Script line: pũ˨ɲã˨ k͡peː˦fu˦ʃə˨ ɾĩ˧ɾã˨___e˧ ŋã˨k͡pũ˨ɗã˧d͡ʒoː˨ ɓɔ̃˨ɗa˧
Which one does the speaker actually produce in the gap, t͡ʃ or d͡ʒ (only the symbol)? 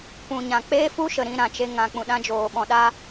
t͡ʃ